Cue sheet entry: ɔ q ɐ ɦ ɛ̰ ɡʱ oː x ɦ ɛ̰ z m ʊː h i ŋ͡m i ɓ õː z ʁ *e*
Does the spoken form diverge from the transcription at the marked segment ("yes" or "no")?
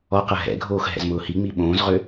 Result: yes